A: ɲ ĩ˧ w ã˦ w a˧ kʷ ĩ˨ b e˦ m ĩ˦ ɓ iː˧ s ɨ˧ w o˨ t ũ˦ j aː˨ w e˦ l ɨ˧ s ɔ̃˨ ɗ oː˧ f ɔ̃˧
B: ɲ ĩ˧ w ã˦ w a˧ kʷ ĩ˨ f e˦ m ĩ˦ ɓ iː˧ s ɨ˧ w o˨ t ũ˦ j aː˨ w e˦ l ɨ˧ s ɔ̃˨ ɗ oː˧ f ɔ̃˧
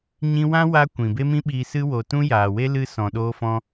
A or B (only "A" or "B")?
A